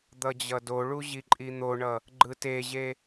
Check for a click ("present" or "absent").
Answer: present